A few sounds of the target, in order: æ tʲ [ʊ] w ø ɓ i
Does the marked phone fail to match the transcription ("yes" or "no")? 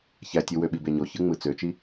yes